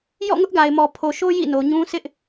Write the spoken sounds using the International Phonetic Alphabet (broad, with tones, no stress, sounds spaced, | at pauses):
j ɔ̰˦˨ ŋ ʊ˦ ʔ ɡ a˨ ɪ̯ m ɔ˨ pʰ o˨ ʃ o˦ j ḭ˦˨ n o˨ ɲ ũ˦ sʰ ɪ˦ ʔ